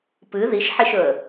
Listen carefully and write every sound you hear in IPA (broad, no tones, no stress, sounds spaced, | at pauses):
p ɨ ð i ʃ ħ i ʃ ɵ ə̯